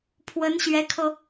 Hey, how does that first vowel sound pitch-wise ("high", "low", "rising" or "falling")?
rising